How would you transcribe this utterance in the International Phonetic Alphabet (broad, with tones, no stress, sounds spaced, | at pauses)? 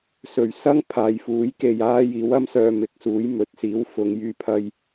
s ɵ˨˩ ɥ s ɐ˥ ŋ pʰ aː˨ j f uː˨˥ j k e˨ j aː˧ j iː˨˧ w ɐ˥ m s œː˧ m ɪ˨ k̚ s uː˨˥ j m ɵ˨ t̚ s iː˨˥ w f ʊ˧ ŋ j yː˥ pʰ ɐ˥ j